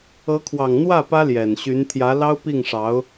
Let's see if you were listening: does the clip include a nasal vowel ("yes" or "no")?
no